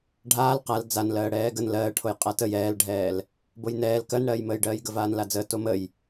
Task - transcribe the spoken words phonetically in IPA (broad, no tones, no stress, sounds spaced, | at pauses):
ɖʱ aː l q a l d͡z a n l ɜː ɽ ɛː ɡ ə n l ɜː ʈʰ o j qʼ a t ə j ɛː l ɖʱ ɛː l | b o j n ɛː l k ɜ n ɽ ɜː j m əː j ɖ ɜː j ɡ ə v aː n l a d͡z əː t o m ə j